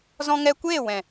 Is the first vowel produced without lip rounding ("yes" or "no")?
no